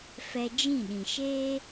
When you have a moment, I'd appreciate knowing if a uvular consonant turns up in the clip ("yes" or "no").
no